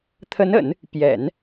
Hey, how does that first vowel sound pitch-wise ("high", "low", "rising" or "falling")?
rising